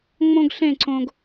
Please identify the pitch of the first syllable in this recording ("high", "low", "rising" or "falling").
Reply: high